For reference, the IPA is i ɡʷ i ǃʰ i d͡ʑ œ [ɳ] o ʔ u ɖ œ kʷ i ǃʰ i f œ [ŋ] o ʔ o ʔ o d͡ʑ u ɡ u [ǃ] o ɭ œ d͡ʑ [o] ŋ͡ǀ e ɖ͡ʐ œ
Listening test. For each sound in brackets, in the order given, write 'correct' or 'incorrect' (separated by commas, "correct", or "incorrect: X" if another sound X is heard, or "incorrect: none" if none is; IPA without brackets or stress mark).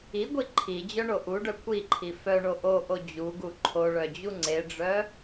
correct, incorrect: ɳ, incorrect: ǃʰ, incorrect: u